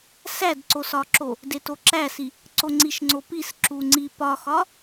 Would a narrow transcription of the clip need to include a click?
yes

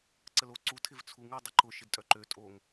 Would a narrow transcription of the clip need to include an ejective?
yes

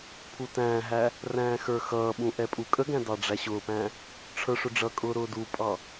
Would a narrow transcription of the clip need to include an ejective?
yes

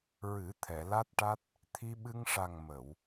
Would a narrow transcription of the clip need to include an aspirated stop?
yes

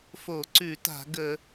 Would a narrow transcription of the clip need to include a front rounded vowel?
no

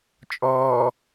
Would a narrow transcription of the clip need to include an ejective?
yes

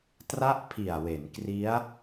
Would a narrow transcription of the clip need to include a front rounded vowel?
no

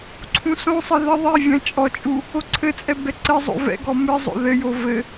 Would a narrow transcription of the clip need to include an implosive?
no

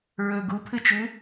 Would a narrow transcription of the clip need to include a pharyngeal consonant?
no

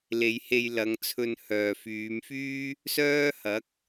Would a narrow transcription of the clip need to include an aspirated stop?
yes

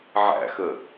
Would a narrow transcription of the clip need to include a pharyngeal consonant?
yes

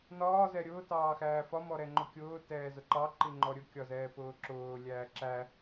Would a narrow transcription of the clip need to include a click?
yes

